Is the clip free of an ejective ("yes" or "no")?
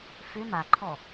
yes